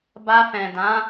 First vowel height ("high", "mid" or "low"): low